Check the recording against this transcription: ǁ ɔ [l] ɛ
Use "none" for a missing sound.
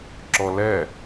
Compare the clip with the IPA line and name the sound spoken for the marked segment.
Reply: l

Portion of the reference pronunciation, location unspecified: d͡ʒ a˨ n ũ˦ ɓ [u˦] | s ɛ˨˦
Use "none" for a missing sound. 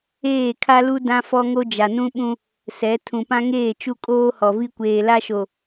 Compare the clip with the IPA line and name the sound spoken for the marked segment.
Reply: ũ˦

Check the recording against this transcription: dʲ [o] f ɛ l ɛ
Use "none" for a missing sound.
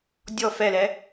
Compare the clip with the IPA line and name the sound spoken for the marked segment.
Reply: ɔ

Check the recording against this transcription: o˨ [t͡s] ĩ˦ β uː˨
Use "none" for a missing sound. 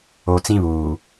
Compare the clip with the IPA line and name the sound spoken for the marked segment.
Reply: t͡s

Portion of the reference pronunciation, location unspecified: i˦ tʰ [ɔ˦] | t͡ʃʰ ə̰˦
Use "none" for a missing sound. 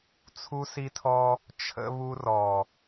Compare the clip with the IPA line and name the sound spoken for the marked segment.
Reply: ɔ˦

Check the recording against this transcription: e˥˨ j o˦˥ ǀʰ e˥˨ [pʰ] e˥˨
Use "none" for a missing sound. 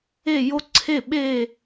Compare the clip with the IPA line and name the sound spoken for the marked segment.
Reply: ɓ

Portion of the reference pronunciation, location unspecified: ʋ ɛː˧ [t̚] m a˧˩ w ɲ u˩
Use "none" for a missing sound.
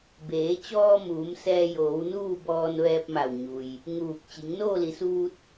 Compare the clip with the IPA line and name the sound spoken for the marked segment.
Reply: p̚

